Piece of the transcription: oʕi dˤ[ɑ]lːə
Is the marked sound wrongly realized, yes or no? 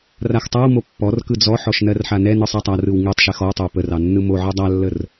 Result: yes